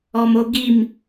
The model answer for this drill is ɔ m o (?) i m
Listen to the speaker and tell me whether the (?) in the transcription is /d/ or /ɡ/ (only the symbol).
ɡ